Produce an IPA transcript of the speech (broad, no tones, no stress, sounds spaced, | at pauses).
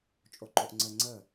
t͡ʃʼ o ǃ o ʔ ŋ͡ǀ ə ŋ͡ǀ ə